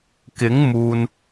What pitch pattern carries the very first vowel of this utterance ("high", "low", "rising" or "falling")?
rising